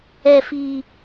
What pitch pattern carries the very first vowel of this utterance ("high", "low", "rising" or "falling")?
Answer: low